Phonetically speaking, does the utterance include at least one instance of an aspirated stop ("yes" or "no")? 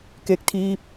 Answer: yes